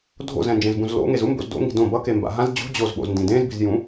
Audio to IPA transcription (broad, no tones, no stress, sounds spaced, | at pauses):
dʱ o̰ z ɛ̃ n d͡ʒ ẽ z b ũ z l o̰ ŋ e z u m b o̰ z d o̰ ŋ i̤ d õ b ʌ k e m b a̰ ɦ ã z d͡ʑ ṳ d͡ʑ o z ɓ o̰ z n d ĩ d ẽ z b i̤ z j ũ